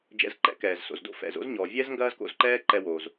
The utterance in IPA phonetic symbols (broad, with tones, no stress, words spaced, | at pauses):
d͡ʒɛ̰˧zǃɛ̰˥kɛː˩z so̰˩zdo̰˥ fɛ̰˩zo̰˥zɲɔː˩vʲɛ˥z ŋɡɐː˥zko̰˧zǃɛː˥ ǃɛ˧wo˩z